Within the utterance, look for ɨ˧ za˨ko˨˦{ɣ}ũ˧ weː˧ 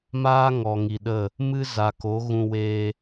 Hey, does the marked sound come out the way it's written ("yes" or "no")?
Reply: yes